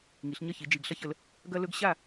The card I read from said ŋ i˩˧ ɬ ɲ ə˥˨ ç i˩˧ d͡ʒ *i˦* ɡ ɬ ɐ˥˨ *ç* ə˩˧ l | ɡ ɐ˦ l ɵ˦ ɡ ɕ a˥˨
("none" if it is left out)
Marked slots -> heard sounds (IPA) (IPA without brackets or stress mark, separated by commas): i˨˩, ç